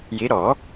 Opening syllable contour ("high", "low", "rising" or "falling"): rising